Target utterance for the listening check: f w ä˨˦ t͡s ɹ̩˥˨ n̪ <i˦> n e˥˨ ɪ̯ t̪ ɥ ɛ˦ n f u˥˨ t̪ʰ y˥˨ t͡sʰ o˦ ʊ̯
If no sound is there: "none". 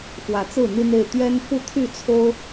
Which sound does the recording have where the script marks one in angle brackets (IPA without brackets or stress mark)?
i˦